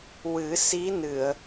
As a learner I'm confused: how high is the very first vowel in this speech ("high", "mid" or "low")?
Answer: high